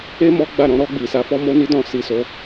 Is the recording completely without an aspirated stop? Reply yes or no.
yes